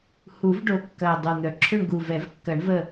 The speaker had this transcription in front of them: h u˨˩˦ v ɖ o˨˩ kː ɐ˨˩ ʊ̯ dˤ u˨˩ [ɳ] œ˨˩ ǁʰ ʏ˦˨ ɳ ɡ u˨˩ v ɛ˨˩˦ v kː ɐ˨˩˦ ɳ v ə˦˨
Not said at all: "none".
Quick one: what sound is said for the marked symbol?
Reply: n̪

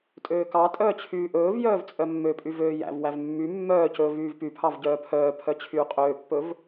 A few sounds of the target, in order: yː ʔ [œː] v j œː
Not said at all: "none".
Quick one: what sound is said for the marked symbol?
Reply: ɵː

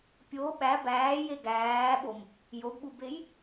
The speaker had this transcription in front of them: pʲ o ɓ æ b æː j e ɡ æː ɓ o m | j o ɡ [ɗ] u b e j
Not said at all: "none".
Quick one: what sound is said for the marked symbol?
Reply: ɓ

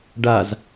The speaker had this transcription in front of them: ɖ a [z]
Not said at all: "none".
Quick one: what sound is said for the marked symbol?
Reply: z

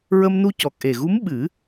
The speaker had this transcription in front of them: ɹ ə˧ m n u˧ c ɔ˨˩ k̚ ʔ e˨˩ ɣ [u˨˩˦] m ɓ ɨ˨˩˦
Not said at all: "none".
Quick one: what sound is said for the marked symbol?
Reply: u˧˥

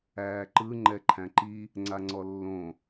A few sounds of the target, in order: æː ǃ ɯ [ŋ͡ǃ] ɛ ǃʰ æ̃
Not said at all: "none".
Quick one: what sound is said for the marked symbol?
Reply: ŋ͡ǃ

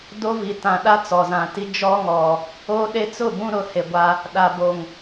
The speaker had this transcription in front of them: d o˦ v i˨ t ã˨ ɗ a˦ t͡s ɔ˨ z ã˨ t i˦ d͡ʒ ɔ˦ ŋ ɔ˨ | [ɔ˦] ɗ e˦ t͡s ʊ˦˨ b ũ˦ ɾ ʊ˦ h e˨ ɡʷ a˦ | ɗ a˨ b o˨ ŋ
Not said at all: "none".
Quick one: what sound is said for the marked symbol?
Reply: o˦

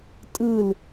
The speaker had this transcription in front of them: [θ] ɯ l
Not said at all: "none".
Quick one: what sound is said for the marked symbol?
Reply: tʼ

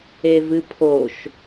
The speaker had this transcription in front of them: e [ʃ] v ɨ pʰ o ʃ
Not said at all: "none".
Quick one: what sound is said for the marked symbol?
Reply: none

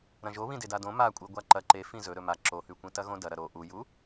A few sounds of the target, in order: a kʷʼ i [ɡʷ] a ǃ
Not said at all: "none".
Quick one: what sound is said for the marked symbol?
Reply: ɡʷ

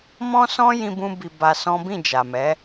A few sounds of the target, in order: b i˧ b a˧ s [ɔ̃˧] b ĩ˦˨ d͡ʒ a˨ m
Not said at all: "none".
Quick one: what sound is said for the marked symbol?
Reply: ɔ̃˦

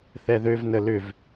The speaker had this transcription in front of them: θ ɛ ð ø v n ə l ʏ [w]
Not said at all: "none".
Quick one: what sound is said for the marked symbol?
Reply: v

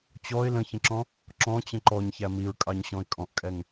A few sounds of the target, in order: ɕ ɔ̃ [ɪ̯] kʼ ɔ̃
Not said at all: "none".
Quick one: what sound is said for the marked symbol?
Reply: ɪ̯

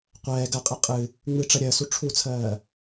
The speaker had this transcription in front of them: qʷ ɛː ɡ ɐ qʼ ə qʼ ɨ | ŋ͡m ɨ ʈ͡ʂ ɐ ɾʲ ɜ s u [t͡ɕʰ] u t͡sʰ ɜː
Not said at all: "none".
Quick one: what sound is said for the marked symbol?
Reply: ʈ͡ʂʰ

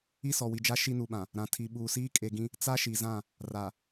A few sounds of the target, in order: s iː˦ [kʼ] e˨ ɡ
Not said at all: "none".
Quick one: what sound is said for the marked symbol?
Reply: kʼ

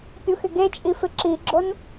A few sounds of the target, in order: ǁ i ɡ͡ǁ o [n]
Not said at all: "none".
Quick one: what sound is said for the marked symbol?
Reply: n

